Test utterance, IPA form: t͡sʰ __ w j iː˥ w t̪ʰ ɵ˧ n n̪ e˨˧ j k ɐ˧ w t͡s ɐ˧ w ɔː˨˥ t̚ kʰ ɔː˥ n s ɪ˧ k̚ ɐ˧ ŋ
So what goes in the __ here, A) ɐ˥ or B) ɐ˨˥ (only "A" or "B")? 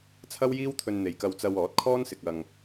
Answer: A